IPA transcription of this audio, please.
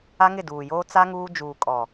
a˦ ŋ ɪ˦˨ d uː˨ j oː˦ t͡s a˦ ŋ uː˦ d͡ʒ uː˨ kʼ ɔ˨

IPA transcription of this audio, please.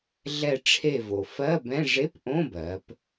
ɮ ɛ˧˩ ʈ͡ʂʰ e˧˩ v o˩ f ɜ˧˥˧ b ɛ̃˧˥˧ ʐ e˧˥˧ p ʔ õ˧˥˧ b ɜ˩˧ p

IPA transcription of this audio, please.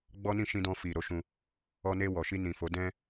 ɡ͡b ɔ˦ n ĩ˦˨ ʃ ĩ˧ d ɔ̃˧ f i˨ ɾ o˨˦ ʃ ũ˧ | ɔ˧ n e˧ w ɔ˨ ʃ i˧ n ĩ˨ f o˨˦ d ɛ̃˦

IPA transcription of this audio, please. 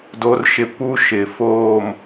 d o˦ r ʃ ɪ˦ p u˦ ʃ ɪ˨ f oː˦˨ m

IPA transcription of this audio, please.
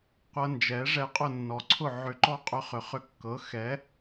qʷ ɤ˧ n d͡ʒ ɛ˩˥ ʐ ɛ˧ qʼ ʊ˥˩ nː ɔ˩ ǀʰ ʊ˥˩ ʕ ʏ˧ ǃ ɔ˥ qʼ ʏ˧ χ ʏ˩ χ ʏ˧ kː ɤ˩˥ x ɛ˩˥

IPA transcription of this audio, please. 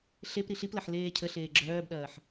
ɬ e p ɾ i ɬ i p l ɐ ħ l eː cʰ ə ɬ eː ɡ͡ǁ œː b ɗ ɐː ħ

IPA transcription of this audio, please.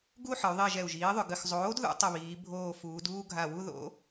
ɡ u˥˧ ħ ə˩˧ y̯ ðˤ i˧˩ ʒ ɛ˧˩ u̯ ʒ iː˩˥ ðˤ ʏ˧˩ ɡ ə˧˩ x zˤ oː˩˥ d ð ṵ˩˥ tˤ ə˧˩ β iː˩˧ bʱ oː˧˩ f uː˩˧ d uː˥˧ ɡʱ a˧˩ w u˥˧ ð o̰˩˥

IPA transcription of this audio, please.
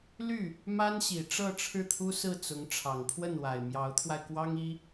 l y˥˩ | m a˥ n ɕ i˨˩ ʈ͡ʂ ɤ˥˧ ʈ͡ʂʰ ɻ̩˥˩ t̪ʰ u˥ s ɹ̩˥˩ t͡s ʊ˧˥ ŋ ʈ͡ʂʰ ɑ˨˩ ŋ pʰ w ə˥˩ n w a˨˩ ɪ̯ m j ɑ˧˥ ʊ̯ t̪ʰ w a˧ ɪ̯ k w ɑ˥ ŋ i˥

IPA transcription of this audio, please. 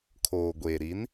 kʰ oː˨ ɡʷ eː˨ ɾ i˨˦ n

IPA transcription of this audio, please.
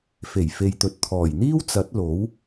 f e˨˩ j f e˨ j t̪ ɵ˨ t̚ t̪ʰ ɔː˨˩ j n̪ iː˥ w t͡s ɐ˨˥ t̚ l o˨˥ w

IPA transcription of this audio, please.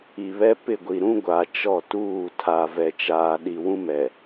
i˨ β ɛ˦ p ɪ˦˨ ɡʷ i˨ ɾ ũ˦ ɡʷ a˨ t͡ʃ ɔ˦˨ t uː˦˨ tʰ a˨ v ɛ˨ t͡ʃ aː˨ ɗ i˨ w ũ˦ m ɛ˨

